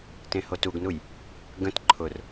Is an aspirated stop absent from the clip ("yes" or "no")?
no